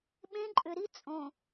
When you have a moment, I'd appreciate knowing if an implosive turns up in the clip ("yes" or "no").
yes